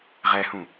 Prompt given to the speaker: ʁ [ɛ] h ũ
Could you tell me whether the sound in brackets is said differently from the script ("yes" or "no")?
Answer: no